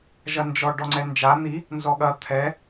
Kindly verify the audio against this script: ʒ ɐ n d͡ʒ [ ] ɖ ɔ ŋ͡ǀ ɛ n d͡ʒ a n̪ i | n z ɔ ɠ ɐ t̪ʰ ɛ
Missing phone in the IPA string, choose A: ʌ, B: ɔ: B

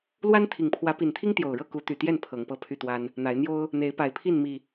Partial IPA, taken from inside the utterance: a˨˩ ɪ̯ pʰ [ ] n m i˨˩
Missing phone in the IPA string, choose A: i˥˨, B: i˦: A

